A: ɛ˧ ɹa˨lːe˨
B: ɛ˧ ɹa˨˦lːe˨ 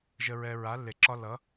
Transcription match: B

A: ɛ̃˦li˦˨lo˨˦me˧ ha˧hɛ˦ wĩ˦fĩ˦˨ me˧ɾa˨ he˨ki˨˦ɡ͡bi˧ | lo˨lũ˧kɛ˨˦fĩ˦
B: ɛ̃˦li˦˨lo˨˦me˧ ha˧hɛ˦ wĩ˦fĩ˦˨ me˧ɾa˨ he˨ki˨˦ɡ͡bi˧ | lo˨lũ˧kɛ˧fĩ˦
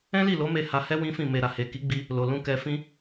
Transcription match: B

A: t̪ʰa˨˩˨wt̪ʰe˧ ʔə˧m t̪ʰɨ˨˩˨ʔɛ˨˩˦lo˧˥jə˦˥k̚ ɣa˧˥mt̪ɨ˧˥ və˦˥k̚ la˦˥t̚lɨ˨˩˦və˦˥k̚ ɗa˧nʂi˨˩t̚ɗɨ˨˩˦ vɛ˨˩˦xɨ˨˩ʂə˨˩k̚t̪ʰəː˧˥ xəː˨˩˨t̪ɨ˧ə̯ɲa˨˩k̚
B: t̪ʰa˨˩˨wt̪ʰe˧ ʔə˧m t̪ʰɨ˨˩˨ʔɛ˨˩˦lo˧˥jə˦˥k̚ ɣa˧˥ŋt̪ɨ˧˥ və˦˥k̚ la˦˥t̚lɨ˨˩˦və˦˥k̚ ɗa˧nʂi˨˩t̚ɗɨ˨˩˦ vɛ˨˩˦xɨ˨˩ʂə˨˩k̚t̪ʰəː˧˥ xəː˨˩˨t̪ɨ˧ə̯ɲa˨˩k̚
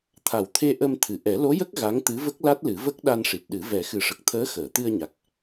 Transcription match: B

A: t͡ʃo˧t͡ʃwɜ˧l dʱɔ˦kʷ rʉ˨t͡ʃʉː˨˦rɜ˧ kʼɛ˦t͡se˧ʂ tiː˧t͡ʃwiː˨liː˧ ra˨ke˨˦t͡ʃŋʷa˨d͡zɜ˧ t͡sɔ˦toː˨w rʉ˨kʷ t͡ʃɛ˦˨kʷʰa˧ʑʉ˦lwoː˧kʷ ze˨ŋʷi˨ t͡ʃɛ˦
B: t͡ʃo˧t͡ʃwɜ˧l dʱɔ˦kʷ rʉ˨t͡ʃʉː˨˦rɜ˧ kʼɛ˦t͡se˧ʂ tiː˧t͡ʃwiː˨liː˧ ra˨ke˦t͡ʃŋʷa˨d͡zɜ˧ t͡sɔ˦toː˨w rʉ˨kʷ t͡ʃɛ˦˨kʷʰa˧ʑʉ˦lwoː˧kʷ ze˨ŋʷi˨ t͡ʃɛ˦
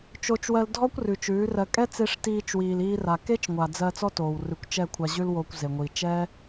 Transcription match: B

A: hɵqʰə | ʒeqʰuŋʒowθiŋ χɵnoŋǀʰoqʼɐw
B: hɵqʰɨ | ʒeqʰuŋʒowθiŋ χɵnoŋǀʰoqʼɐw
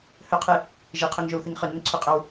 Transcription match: B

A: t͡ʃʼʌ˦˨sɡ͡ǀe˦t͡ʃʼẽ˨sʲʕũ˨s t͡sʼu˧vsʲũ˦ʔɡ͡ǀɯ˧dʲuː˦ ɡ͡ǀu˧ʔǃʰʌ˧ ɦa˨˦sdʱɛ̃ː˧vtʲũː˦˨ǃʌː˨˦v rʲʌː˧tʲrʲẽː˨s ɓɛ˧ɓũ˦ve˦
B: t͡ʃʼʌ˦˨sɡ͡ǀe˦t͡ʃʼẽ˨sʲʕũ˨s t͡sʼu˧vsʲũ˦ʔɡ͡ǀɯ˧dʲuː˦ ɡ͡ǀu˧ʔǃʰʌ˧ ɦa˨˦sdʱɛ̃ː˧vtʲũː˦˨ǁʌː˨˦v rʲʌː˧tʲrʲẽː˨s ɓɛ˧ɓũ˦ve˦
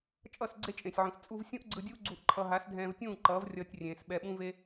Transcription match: A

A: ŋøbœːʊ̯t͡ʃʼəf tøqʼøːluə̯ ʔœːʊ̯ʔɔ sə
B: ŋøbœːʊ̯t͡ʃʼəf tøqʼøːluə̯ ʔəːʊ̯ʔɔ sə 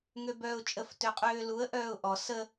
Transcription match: A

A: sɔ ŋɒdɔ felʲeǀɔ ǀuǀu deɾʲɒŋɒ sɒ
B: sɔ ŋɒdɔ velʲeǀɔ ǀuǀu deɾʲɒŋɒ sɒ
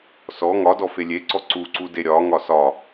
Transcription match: A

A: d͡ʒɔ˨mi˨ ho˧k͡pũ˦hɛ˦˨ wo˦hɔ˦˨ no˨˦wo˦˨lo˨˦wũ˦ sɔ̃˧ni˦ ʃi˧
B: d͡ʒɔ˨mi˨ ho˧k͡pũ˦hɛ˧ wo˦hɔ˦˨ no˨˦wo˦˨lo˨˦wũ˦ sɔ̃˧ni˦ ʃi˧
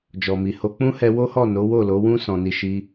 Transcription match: B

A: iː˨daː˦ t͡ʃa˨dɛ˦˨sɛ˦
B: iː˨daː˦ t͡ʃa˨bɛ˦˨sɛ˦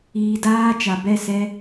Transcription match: B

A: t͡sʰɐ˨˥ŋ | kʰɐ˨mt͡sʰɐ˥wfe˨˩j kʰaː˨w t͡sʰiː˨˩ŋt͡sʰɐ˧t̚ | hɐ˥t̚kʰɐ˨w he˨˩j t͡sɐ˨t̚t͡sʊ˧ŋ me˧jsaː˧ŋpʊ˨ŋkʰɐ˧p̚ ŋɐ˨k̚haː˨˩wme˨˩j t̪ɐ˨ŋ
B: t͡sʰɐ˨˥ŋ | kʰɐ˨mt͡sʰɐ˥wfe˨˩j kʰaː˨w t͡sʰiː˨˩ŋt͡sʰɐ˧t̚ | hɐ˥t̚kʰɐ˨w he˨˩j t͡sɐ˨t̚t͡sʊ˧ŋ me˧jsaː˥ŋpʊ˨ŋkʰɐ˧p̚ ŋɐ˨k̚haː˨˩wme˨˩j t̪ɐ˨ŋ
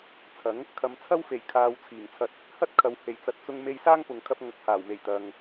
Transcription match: B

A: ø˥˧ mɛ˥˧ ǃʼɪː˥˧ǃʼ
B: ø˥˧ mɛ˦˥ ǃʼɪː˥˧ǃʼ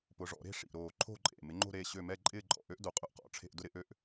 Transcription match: A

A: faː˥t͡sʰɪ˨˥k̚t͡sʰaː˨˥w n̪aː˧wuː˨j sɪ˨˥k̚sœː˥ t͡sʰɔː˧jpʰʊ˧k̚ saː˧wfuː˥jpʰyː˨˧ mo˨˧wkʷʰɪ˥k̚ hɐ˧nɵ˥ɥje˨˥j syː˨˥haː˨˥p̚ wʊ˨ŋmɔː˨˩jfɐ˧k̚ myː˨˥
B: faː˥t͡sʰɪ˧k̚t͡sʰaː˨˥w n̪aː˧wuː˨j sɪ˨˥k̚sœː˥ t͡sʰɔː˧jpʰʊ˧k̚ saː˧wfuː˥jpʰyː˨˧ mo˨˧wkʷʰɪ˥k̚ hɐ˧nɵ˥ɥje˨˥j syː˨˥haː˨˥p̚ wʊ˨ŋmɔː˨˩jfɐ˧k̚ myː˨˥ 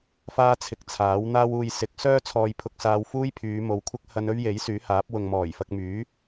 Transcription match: B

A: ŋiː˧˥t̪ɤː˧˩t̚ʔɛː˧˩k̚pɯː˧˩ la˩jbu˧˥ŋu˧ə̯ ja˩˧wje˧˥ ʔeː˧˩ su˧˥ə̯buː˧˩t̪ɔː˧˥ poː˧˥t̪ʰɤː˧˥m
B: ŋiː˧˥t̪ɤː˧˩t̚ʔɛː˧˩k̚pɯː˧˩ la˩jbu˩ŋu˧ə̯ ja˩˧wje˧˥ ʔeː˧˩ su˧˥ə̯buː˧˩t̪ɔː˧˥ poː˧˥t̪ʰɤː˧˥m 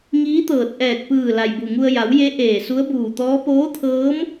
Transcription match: B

